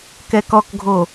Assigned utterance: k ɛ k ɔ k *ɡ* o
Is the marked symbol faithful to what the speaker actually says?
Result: no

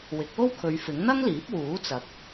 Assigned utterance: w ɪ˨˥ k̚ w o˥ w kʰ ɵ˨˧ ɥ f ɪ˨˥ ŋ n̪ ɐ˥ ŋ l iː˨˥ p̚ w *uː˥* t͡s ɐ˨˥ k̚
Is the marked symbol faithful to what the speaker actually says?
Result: no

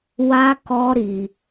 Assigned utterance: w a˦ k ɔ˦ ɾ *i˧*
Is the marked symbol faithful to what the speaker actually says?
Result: yes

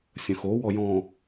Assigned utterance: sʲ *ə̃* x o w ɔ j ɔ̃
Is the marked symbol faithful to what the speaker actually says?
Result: yes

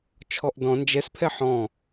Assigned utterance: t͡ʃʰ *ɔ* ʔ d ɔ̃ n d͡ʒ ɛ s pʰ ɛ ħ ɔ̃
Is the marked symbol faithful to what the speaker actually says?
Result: yes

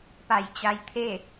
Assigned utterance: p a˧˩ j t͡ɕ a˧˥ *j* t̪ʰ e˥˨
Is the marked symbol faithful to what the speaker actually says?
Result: yes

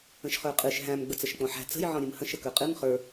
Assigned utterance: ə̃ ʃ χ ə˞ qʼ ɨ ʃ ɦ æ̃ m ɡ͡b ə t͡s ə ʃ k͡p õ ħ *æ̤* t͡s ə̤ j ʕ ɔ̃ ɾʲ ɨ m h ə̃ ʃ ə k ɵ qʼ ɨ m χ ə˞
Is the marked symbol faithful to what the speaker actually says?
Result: yes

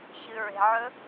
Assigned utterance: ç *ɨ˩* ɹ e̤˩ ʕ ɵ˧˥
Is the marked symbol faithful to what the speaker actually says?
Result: yes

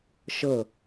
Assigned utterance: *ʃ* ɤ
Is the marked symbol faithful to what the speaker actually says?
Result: yes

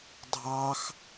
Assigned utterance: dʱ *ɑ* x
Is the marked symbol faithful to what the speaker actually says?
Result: yes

